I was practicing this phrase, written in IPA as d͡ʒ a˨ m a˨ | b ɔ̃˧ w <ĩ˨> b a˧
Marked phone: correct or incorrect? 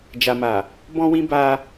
incorrect